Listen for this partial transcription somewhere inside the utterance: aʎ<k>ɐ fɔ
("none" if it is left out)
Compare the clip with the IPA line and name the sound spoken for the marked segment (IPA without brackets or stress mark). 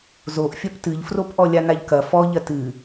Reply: k